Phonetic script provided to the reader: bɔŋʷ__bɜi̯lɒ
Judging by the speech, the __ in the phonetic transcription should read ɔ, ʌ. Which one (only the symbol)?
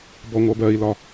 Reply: ʌ